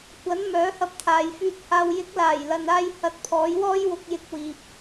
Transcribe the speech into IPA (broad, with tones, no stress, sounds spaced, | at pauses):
kʷ ɐ˨˥ n m œː˨˥ h ɐ˧ p̚ t̪ʰ aː˨ j f yː˧ t̚ h aː˧ w j ɪ˨˥ k̚ l aː˨˩ j l ɐ˨ n aː˧ j h ɐ˧ t̚ pʰ ɔː˨˥ j w ɔː˥ j w ʊ˧ k̚ j ɪ˧ k̚ w iː˨ p̚